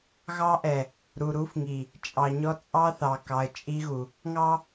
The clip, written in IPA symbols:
ɣ ɑ˦ ʔ ɛ˨ | ɾ u˨ ɾ u˦ f ŋ i˨ | t͡ʃʼ ɑ˨ ɲ ɔ˦ t͡sʼ ɑ˦ θ ɑ˨ k ɑ˨ ə̯ t͡ʃʼ i˦ ɣ u˨ | ŋ ɑ˦

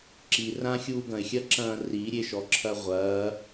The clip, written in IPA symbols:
ǁ i r ã xʲ uː ɡ ɐ̃ ɪ̯ xʲ ɐ ǁ ɐ̃ː r i ɾʲ e ʃ ɔ ǁʰ ɐ ʁʷ ɐː

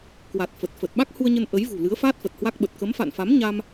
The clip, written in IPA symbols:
k w a˨˩ t̚ f ə˨˩ t̚ f ə˨˩ t̚ ɓ a˦˥ k̚ h u˧ ə̯ ɲ ə˧ n ʔ ə˨˦ j v ṳ˨˩ l ɨ˨˦ ə̯ f aː˦˥ t̚ f ə˨˩ t̚ h w a˦˥ k̚ ɓ ə˨˩ t̚ k ə˨˦ m f a̰˧˨ n f a˨˦ m ɲ a˧ m

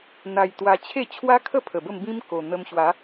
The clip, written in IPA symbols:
n̪ a˧ j t̪ w a˧ t͡ɕʰ e˥˧ t͡ɕʰ w a˦ kʰ ə˥˧ pʰ ə˨˩ b ə˥˧ m b ĩ˦ m k o˨˩ n̪ ə˧ m ɕ w a˨˦

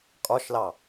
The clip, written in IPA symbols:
kʼ ɒ ʃ l ɑ

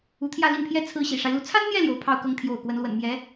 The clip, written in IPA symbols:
u˧˥ t̪ʰ j ä˥˧ l i˥˩ n pʰ j ɛ˥ t͡sʰ ɹ̩˧˥ ɕ ḭ˨˩ ʂ a˦ ɪ̯ l u˧˥ t͡sʰ a˥ n n̪ j ɛ˥˩ l j o˧˥ ʊ̯ pʰ ɑ˥˧ ʊ̯ k ɤ˥˧ ŋ t̪ʰ j o˥˩ ʊ̯ k w ə˧˥ n l w ə̰˨˩ n m j ɛ˧˥

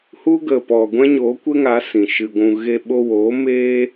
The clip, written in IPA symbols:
h u˦ ɡ ə˨ p ɔ˨ ɡʷ ɛ̃˦ ɲ o˨˦ kʷ e˦ ŋ a˨˦ s ĩ˨ ʃ ɨ˧ ɡʷ ũ˧ ɣ e˧ ɓ o˧ w oː˨˦ m eː˦

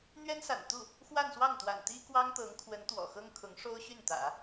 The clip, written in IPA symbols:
n̪ ɥ ɛ˥ n s a̰˨˩ n t̪ u˥˩ | x w a˥˧ n s w ɑ˥˩ ŋ t̪ w a̰˨˩ n t̪ i˥ k w ɑ˥ ŋ t̪ ɤ˧˥ ŋ kʰ w ə˧˥ n t̪ w ɔ̰˨˩ x ɤ˥ ŋ kʰ ʊ˧˥ ŋ ʂ o˥ ʊ̯ ɕ y˥˩ n t̪ ä̰˨˩˦

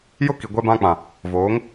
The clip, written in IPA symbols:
j ʊ˦ k i˨ ɡʷ ɛ˦ b ã˦ k͡p ã˨ | v oː˨˦ ŋ

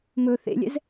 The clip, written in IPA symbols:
m ɵ θ ḛ lʲ ɛ̰ z

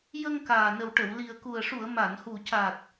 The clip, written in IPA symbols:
j ə˧ ŋ k aː˨˩ n ə˨˩ w ʈ ə˨˩˨ w l i˨˩ ə̯ k u˨˩ ə̯ ʂ u˨˩˨ ə̯ m a˨˩˨ n h u˨˩ c a˨˩ t̚

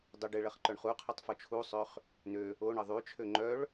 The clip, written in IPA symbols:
dˤ y ɖ ɪ ɭ ɐ χ ǃ œ ɳ χ u qʰ ɐ tˤ f u t͡ʃʰ u sˤ ø χ | n ø | o ɳ ə ðˤ y t͡ʃʰ ø ŋ͡ǃ œ ɭ

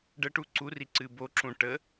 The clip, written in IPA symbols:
ɖ ə ʈ u ǀ u r i ǀ ɨ b o ǁ ũ ʈ ə

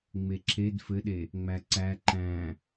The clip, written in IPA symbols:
ŋ͡m e ǁʰ e d f ɘ ɗ e | ŋ͡m æ ǀ æ ǃ æ̃

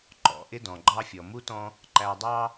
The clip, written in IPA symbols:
ǃ ɔ̰˨ ʔ ɪ˦ d ɔ̃˩ ɡ͡ǃ ɑ˦ fʲ ɔ˩ m u˥ t ɔ̃˦ | ǃ æ˨ dˤ ɑ˦

